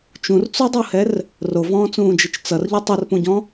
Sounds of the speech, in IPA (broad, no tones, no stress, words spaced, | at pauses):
t͡ʃũrt͡sudˤuhɛr | rovɔ̃ːt͡sũːd͡ʒit͡ʃ t͡sʌrʎo tˤʌrpũɟɔ̃